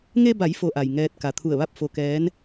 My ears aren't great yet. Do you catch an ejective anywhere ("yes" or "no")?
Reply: no